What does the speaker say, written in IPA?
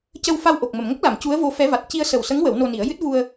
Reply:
c ə˧ w f a˧ w ʔ o˨˩ k̚ m ə˨˩˨ m ŋ ə˦˥ k̚ l a˨˩˨ m c u˧˥ ə̯ v o˧˥ f ɛ˧˥ v a˨˩ t̚ c i˧ ə̯ s ə˨˩ w s ə˧˥ ŋ w ə˨˩˦ w n o˧ n i˨˩˦ ə̯ j ɨ˦˥ t̚ v u˧ ə̯

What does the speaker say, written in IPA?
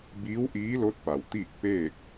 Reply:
b iː˧˥ w ʔ iː˧˥ l o˧˥ t̚ p a˩ w t̪ iː˥˨ k̚ p eː˥˨ k̚

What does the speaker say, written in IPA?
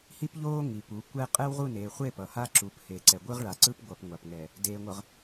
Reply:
h i˦ p ʎ oː˦ ŋ i˨ p u˨˦ kʷ ɛ˦ qʼ ɛ˦ w ʁ u˦˨ n eː˨ χʷ e˦˨ p ʌ˨ h a˦ ǁ u˨˦ p h e˨ ǀ ɛ˨ ɡʷ ɯ˦ ʁ ɭ a˨ ǀ ɯ˦ p ɡʷ ʌ˨ p ŋʷ a˨ p ŋ ɛ˨ | d eː˨ ŋʷ ʌ˨ ʁ

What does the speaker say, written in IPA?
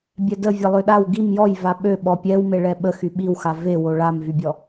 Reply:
bʲ ɛ d ə vʲ ɛ lˠ ø ɗ a w ɡ i m j ɔ j v a ɓ ø ɓ ɔ pʲ ɛ w m e ɭ ɛ ɓ ə x y ɓ i w x a v e w o ɭ a m v y bʲ ɔ

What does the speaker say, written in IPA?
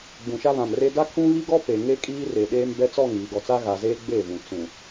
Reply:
ɡ͡b ũ˨ ʃ a˦ β ã˨ m r e˦ d a˦ kʰ ũ˦ β i˦ ɡ ɔ˦ p e˨ ŋ e˦ kʼ iː˦ r e˨ ɗ eː˦ m b ɛ˦ t͡s ɔ˦˨ ŋ iː˨ ɡ ɔ˨ t͡s a˦ ɣ a˨ z eː˦ ɡ͡b eː˦˨ v ũ˨ t͡s ũ˨

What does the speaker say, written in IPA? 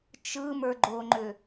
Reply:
t͡ʃ ɯ m ə˞ ɡ͡ǃ o ŋ͡ǃ ʏ

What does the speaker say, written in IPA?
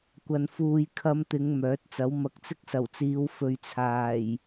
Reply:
kʷ ɐ˧ n f uː˧ j kʰ ɐ˧ m t̪ ɪ˨˧ ŋ m œː˨˥ t̚ t͡s ɐ˨˥ w m ɐ˨ k̚ t͡s ɪ˥ k̚ s ɐ˨˩ w t͡s iː˨˧ w f ɵ˨ ɥ t͡sʰ aː˨˩ j

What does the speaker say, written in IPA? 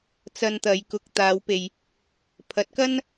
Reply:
t͡s ɐ˧ n t̪ ɐ˨˧ j k ʊ˨ k̚ t̪ aː˨˧ w p e˨ j | pʰ ɐ˨˥ t̚ k ɐ˥ n

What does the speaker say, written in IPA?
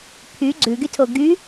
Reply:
pʰ y ɡ͡ǀ ʉ ɡ y tʰ o ɡ y

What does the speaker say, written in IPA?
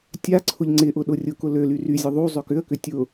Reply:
tʲ a ǀʰ ʊ ʎ ŋ͡ǀ ɪ ʔ ʊ ɗ ʊ rʲ ʊ k ʊ l ø l y r y zʲ ʊ ðˤ u zˤ ø k ʏ ə̯ k ʏ tʲ ʊ

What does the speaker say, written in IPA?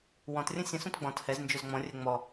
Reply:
w ɔ̃ t rʲ ə̃ sʲ ə̃ s ũ t ɡ͡b ɔ̃ t h ɛ z n d͡ʒ ɵ z ŋ͡m ɔ̃ rʲ ɛ ŋ͡m ɔ

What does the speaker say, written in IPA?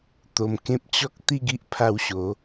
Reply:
t̪ o˧ m k ẽ˦ p̚ t͡ɕ ɔ˦ k̚ t̪ i˥˧ ɡ i˦ ʔ pʰ a˧ w ɕ o˨˦

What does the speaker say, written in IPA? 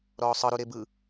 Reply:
ɾ ɔː sˤ ɤ ɾ u ɾ e b ɯ

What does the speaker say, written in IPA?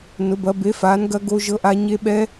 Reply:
n ʊ˨˥ b ɐ˨˥ b e˨˥ f aː˨˥ n ɡ ɐ˦˥ ɡ o˦˥ ʒ ɤ˦˥ ʔ a˦˥ ɲ e˦˥ ɓ ɛ˦˥

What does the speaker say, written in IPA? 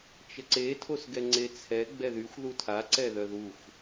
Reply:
t͡ʃ ə ǀ e tʰ o s ɡ ɛ ŋ͡ǀ e t͡sʰ ɛ ɡ͡b ɛ ð y xʷ ð u tʰ a ǀ ɛ ð œ ð u xʷ

